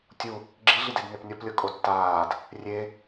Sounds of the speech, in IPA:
tʲu | ɡ͡ǁiɮided nepnʲɔplʲɤ kʼotːaːd | rʲe

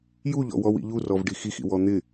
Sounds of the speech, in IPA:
juʎɔ̰wɔw ḭʎurɔvɖi xixḭ wɔn̪ɪ

